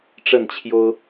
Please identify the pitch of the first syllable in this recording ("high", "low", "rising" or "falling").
falling